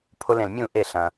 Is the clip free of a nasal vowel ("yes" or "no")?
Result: no